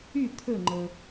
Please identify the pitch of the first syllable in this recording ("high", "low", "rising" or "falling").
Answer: falling